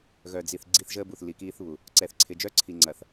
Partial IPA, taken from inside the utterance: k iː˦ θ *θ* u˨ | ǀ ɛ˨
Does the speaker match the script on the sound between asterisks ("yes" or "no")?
no